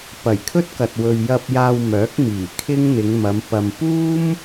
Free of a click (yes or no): yes